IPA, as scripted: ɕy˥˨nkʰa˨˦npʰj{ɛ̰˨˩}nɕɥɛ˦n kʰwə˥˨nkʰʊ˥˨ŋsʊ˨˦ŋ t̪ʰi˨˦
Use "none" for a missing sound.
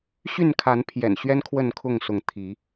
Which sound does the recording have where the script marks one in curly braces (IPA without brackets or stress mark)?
ɛ̰˨˩